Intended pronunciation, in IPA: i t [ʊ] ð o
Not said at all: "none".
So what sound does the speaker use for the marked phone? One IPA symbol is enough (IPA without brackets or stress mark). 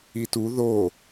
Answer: u